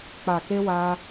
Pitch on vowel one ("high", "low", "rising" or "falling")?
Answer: low